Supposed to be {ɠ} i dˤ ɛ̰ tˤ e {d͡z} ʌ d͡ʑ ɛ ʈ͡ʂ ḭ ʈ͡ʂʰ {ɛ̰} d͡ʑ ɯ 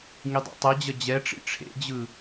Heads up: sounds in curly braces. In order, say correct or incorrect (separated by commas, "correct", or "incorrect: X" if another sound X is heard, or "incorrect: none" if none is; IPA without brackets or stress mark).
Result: incorrect: ŋ, incorrect: d͡ʑ, incorrect: ḛ